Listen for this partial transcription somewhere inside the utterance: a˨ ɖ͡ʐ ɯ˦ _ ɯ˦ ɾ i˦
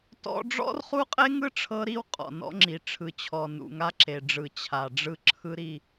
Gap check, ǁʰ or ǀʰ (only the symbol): ǁʰ